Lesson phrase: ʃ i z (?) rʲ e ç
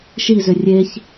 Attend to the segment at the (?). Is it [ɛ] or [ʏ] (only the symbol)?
ʏ